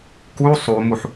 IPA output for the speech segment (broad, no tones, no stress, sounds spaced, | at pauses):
k u sˤ u m u ħ